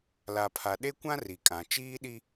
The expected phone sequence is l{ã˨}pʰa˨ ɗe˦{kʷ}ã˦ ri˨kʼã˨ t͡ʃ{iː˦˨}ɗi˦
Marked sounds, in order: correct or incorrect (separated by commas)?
incorrect, correct, incorrect